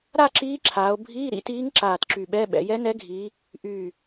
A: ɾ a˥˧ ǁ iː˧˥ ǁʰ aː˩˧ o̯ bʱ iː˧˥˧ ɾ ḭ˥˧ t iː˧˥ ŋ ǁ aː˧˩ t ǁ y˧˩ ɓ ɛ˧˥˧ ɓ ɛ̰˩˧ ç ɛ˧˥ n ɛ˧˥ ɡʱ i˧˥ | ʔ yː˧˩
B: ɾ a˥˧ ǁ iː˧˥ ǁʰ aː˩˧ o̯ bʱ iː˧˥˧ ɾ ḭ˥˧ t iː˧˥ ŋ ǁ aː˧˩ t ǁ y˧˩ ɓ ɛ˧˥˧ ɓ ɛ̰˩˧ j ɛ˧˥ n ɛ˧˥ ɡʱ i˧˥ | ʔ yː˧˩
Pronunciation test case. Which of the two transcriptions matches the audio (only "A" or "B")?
B